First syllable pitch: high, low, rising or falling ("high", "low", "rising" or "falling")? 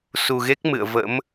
low